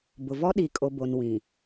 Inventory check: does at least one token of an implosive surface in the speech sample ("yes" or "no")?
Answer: yes